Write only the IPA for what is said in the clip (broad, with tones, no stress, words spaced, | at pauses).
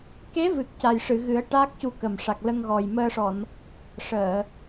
ke˧˥vɨ˨˩k̚ ca˨˩jʂɨ˨˩˨ɣɨ˨˩˦ə̯ ʈaː˦˥k̚cu˧kə˨˩m ʂa˨˩k̚lə˧ŋɣɔ˨˩j məː˧ʂɔ˨˩˨n | ʂəː˨˩˨